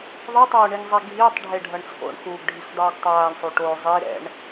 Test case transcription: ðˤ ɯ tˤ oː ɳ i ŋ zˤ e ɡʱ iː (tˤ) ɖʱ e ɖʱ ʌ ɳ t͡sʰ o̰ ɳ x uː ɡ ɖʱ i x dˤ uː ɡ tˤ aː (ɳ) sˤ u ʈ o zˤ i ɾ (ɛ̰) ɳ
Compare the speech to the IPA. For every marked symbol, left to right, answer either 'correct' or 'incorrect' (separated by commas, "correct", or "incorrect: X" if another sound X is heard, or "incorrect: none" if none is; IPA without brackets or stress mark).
correct, correct, correct